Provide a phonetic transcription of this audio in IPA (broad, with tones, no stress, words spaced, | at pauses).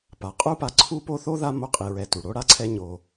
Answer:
pa˩qʼu˥pa˨ ǀʰu˥ po˦θo˥ða˦ mo˦qʼi˨ɹɛ˨ tu˩ ɽo˦ ɽa˦ǀʰɛ˦ ɲo˨